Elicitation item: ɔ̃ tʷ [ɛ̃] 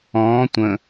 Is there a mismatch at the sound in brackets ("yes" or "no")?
yes